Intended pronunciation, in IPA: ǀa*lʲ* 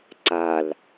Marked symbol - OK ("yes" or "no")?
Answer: no